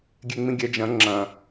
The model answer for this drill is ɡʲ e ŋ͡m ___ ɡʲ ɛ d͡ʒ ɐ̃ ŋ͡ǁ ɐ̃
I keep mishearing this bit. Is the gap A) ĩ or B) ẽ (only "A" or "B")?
A